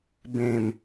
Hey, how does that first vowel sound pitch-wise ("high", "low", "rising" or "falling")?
low